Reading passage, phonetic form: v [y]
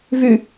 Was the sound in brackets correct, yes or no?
yes